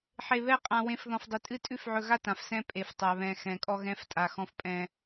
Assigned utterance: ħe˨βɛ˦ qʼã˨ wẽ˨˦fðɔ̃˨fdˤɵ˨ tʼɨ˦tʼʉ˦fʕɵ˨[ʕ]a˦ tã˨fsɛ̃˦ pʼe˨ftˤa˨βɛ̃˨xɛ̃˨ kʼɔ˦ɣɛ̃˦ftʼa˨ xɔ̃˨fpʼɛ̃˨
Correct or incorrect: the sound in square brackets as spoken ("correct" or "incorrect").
incorrect